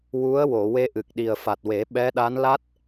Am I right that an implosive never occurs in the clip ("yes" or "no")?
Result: no